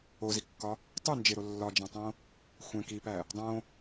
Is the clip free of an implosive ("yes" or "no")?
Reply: yes